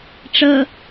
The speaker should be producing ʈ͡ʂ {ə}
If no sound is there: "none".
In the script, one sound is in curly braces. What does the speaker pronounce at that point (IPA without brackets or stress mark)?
ə